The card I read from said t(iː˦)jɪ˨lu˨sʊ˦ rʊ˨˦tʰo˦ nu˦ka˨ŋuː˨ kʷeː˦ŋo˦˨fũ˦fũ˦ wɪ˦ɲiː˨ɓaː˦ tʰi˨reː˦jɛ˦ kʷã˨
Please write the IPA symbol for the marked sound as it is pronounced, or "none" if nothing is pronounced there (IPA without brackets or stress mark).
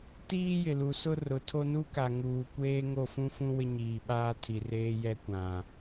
iː˦